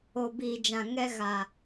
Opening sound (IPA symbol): o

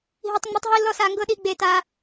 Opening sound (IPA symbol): ɦ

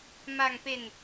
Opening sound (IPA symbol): m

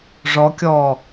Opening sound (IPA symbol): ʐ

